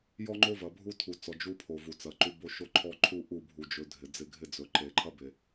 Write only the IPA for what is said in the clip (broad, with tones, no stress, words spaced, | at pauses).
jɔ˦ŋ͡ǃo˦ vɐ˨bʱu˦tʰu˨t͡sɔ˨ d͡ʒu˦pʰo˨ vu˨t͡sɐ˨ǃu˦ bo˦ʃo˦ǃʰɔ˦ ǃʰu˦ʔu˦˨bʱu˨d͡ʒɵ˨˦ dʱɪ˨ d͡zɪ˦˨ɡʱɪ˦d͡zɵ˨ ǃe˨ǃʰɐ˦be˨